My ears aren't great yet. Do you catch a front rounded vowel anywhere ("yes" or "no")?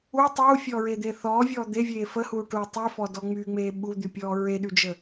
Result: yes